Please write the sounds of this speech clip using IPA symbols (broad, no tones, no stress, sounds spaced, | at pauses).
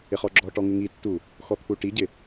ɪ χ ɔ ɡ͡ǁ ɔ ʈ ɔ ŋ ɪ ŋ i tː u | x ɔ t̪ʰ u ʈ i ɟ ɪ